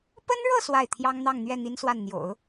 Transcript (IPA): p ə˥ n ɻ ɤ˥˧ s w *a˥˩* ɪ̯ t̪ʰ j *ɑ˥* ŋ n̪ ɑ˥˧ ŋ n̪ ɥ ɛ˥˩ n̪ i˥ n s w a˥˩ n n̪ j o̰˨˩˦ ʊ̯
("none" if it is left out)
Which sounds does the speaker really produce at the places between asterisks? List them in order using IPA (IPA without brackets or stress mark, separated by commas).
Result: a˥˩, ɑ˥